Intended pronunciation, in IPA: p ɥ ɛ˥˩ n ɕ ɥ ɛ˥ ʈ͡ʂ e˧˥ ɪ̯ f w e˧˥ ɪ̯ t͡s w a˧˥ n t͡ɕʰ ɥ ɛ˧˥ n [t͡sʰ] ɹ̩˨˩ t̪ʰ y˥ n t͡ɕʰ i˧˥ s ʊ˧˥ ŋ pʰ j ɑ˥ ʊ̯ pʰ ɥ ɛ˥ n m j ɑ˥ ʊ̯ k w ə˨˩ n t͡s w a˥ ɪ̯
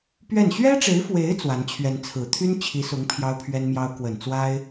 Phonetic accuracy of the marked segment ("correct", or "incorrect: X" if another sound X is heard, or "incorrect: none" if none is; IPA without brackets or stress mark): correct